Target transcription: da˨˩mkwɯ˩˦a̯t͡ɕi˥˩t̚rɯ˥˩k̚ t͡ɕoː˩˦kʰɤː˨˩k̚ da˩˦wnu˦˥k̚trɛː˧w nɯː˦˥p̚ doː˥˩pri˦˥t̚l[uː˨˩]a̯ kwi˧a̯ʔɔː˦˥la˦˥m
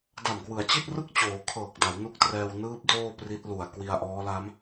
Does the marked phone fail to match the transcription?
yes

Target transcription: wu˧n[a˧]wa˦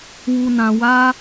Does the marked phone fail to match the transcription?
yes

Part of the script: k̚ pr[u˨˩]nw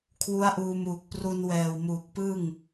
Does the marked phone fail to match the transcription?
yes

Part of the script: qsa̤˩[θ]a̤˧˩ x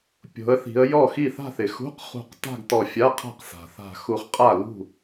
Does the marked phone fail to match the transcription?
no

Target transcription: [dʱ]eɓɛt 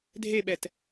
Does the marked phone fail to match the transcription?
no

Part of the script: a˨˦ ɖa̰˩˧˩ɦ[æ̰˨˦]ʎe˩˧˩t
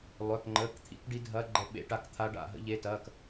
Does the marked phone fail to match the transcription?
yes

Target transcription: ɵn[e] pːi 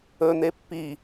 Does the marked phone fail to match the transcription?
no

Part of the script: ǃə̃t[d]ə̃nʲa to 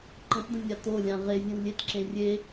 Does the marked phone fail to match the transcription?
no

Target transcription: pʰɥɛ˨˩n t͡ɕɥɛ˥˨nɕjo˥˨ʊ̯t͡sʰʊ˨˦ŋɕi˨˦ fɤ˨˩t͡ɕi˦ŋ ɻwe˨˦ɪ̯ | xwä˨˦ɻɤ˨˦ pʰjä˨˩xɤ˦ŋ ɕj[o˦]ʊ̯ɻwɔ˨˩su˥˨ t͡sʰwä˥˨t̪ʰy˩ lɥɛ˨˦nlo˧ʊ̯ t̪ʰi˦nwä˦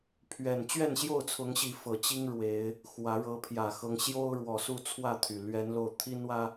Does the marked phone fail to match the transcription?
no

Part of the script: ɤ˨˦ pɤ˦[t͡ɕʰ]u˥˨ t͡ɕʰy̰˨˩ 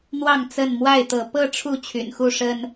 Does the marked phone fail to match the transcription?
yes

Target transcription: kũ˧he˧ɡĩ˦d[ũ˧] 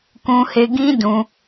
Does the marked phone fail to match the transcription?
no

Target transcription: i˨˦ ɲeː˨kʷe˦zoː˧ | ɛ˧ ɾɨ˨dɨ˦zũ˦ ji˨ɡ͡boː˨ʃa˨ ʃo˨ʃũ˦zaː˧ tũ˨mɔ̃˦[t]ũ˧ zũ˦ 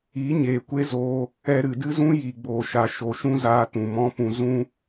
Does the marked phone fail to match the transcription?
yes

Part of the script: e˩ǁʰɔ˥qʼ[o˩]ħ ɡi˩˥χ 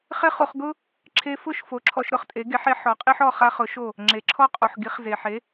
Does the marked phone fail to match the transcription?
no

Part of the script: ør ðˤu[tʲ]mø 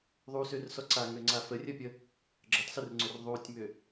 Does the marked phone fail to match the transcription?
no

